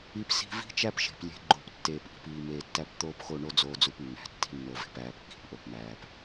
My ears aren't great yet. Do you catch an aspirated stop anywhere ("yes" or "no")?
no